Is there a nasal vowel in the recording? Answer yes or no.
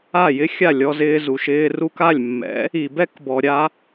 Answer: no